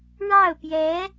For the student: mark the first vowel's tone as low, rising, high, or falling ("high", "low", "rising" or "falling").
falling